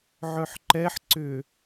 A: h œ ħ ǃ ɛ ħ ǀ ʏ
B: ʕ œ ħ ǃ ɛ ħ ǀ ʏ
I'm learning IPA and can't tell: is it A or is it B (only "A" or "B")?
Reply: B